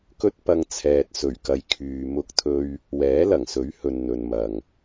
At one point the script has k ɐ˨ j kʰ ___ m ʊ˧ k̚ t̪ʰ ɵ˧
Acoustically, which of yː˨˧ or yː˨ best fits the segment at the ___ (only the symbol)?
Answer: yː˨